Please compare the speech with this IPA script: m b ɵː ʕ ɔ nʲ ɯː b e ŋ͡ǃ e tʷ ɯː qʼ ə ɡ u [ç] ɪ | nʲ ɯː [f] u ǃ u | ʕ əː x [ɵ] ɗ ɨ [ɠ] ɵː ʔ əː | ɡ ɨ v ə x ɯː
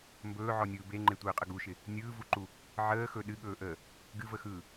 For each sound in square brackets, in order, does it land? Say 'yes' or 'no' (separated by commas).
no, no, yes, yes